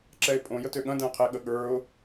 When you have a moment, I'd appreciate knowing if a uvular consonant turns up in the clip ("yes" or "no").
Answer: yes